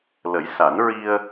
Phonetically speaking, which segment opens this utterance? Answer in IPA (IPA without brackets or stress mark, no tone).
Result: l